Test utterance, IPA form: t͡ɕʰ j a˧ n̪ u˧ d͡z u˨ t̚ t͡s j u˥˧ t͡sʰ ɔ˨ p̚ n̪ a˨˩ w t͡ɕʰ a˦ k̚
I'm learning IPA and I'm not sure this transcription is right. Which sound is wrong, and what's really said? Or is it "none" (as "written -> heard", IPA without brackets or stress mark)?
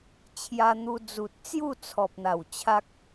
none